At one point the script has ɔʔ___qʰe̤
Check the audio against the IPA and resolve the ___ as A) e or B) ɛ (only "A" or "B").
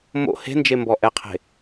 B